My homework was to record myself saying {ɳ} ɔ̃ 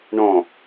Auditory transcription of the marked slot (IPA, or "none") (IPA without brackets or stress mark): ɳ